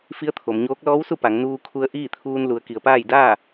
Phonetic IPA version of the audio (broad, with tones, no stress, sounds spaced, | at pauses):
f i˧˥ ə̯ t̪ʰ o˩˧ m ɲ oː˧˥ k̚ l ɔː˧˥ w s u˥˨ p a˩˧ ŋ n uː˧ kʰ u˧ ə̯ ʔ iː˥˨ t̪ʰ uː˧ n l u˩˧ ə̯ k i˩˧ ə̯ p aː˥˨ j d aː˥˨